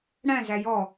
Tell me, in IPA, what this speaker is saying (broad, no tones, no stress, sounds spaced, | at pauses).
ɽ æ̃ z æ j ɔ